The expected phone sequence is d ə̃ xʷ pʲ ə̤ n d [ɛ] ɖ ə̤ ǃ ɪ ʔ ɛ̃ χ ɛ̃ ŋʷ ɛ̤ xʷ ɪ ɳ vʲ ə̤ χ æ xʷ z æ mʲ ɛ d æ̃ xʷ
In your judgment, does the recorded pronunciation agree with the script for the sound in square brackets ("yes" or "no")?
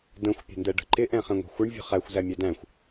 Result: yes